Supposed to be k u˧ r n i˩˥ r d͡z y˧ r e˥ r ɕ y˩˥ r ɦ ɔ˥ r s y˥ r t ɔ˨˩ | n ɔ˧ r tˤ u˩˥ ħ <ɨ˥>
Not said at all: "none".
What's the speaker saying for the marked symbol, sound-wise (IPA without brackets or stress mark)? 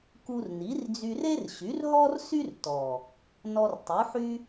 y˥